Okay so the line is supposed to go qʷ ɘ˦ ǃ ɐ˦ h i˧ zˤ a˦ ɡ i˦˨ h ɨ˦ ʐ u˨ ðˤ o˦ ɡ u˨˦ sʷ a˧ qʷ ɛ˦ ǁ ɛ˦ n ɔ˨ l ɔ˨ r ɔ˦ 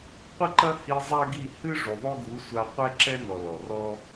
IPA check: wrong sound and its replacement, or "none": none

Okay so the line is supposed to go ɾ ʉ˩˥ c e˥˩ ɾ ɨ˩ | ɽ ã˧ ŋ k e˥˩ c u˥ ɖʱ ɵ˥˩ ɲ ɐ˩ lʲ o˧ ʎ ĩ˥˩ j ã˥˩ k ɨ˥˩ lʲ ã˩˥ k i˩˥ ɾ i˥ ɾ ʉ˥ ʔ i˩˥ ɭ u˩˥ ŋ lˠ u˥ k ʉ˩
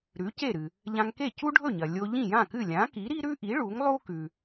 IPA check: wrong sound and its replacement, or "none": ɽ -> ʎ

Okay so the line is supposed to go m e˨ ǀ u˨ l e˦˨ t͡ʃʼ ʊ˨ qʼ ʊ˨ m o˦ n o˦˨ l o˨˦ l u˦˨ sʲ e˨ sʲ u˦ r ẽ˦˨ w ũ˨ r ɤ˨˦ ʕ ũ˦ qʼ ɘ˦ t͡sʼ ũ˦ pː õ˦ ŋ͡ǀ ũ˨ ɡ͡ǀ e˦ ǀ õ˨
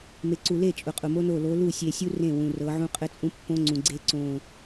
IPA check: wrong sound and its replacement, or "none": none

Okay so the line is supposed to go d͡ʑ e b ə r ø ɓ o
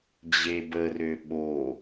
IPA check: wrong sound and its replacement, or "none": none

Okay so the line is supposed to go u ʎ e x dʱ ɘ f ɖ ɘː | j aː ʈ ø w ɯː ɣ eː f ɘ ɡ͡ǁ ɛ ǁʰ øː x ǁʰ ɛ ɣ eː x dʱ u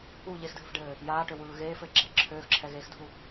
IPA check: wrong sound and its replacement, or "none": none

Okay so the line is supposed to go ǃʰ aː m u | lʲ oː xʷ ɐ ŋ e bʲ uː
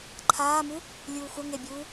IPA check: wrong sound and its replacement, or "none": oː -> uː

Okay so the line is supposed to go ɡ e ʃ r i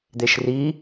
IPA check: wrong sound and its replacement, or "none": ɡ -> d̪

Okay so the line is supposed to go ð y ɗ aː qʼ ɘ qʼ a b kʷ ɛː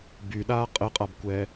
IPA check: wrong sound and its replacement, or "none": ð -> b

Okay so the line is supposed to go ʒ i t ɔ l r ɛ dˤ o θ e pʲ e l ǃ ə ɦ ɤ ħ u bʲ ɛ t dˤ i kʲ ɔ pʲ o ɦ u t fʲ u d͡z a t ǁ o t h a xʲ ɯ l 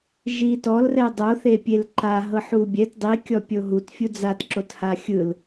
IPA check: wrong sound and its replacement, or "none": ə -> a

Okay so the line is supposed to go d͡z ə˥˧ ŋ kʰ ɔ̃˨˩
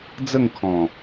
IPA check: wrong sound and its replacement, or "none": none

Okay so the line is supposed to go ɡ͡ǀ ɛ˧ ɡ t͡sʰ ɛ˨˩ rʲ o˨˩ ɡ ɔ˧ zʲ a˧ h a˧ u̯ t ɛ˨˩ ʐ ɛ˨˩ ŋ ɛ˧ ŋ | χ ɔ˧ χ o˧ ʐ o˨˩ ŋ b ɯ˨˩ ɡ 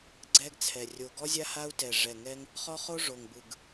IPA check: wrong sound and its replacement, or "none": none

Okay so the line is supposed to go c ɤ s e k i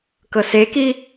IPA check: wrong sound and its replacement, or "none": c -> k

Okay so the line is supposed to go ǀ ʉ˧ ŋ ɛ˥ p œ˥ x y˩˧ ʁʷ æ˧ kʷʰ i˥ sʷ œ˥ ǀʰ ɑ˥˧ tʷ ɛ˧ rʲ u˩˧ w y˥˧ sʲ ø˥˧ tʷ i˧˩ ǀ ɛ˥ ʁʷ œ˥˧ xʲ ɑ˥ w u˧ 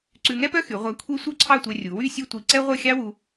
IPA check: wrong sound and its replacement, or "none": none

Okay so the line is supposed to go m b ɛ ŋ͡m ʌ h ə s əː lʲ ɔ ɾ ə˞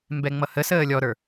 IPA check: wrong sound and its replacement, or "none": none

